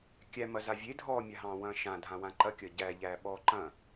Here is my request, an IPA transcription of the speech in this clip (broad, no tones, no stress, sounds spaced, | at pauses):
kʲ æ m ɐ z a vʲ e dʱ ɔː mʲ a ɦ ɑ̃ː w ɐ̃ː ʃ ã dʱ ã w ã ǃ ɐ kʲ ɐ ɟ æ ʎ æː ɓ ɔː ǃ ɐ̃